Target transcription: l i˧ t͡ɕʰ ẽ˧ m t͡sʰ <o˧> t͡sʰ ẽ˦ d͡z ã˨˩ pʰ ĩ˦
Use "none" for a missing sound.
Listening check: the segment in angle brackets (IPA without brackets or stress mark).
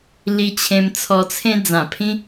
ɔ˧